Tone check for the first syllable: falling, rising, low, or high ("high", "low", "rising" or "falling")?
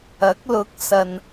rising